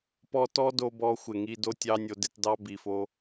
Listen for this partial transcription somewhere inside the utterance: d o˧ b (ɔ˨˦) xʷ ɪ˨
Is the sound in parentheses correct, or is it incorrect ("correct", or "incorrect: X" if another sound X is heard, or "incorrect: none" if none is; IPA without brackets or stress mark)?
incorrect: ɔ˧